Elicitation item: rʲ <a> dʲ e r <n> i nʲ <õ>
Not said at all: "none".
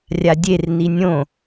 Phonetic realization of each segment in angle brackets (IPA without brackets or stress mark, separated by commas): a, n, õ